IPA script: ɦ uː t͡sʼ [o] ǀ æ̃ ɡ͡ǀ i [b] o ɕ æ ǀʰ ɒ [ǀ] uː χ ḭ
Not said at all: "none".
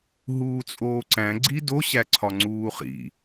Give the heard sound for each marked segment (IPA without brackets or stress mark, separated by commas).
oː, d, ŋ͡ǀ